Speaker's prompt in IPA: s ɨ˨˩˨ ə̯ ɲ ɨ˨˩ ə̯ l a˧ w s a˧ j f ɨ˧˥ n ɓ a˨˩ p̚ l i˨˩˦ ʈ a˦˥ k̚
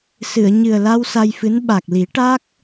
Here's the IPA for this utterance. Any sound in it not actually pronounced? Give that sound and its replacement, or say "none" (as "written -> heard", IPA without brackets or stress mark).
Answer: p̚ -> k̚